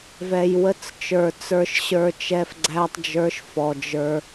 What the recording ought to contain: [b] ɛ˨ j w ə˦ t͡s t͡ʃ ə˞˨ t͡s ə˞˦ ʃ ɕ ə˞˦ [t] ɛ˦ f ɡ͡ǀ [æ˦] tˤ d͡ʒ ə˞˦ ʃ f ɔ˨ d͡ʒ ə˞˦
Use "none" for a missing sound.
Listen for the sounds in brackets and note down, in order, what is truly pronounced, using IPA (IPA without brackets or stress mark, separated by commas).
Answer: v, t͡ʃ, æ˦